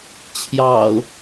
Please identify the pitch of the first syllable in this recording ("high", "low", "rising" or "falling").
low